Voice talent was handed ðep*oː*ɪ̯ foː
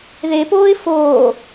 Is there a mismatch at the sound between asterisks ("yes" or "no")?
no